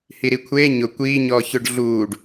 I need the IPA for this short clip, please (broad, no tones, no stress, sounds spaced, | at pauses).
h i ɾ i kʷʰ eː ɲ ʊ kʷ iː ɲ ɔː ç ʊ ɖ ɮ uː ɖ